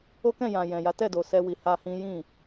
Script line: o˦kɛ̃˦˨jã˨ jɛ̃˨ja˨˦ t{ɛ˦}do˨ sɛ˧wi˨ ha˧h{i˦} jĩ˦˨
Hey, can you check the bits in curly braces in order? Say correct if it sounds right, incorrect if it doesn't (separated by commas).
incorrect, incorrect